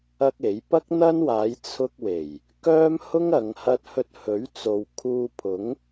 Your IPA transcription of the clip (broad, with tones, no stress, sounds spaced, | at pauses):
ɐ˥ k̚ e˨˥ j p ɐ˥ k̚ n̪ ɐ˥ n w aː˨˧ j t͡sʰ ʊ˧ k̚ w e˨˩ j | k œː˥ m h ʊ˥ ŋ ɐ˨˧ ŋ h ɐ˥ t̚ h ɵ˧ t̚ h ɵ˨˥ ɥ t͡s o˨ w kʰ uː˧ pʰ ʊ˨˥ ŋ